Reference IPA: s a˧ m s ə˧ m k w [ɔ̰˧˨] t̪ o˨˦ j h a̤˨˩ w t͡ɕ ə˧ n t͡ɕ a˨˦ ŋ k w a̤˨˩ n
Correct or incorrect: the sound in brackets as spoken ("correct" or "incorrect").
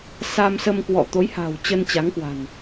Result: correct